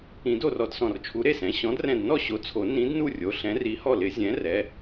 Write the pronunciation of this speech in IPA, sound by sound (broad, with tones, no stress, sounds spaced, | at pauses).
ĩ˨˩˦ d o˥˩ r ɔ˥˩ d s ɔ̃˧˩ r t͡ʃʰ u˨˥ ɾ e˥˩ s ɛ̃˩˧˩ ɕ ɔ̃˨˥ d r ɛ̃˧˩ d n ɔ˥˩ ɕ o˨˥ t͡sʰ o˨˩˦ n ĩ˨˥ d n u˥˩ rʲ o˩˧˩ ɬ ɛ̃˨˥ r i˨˥ h ɔ˥˩ l ɪ˨˩˦ zʲ ɛ̃˨˥ r ɛ˩˧˩